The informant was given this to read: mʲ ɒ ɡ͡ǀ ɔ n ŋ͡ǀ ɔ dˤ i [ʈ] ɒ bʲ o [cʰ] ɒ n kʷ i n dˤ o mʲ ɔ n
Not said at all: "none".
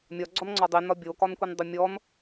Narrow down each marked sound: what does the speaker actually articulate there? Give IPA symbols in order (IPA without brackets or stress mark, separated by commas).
n, k